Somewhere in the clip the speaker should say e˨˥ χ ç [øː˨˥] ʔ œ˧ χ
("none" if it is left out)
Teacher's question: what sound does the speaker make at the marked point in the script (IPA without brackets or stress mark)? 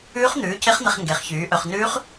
yː˨˥